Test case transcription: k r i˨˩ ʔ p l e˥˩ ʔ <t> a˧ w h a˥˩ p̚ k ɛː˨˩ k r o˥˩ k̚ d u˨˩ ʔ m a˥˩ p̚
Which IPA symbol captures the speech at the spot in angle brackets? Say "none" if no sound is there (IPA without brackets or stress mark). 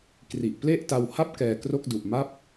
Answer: t